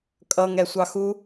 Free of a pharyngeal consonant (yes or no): yes